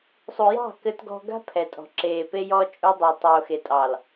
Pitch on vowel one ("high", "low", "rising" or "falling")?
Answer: low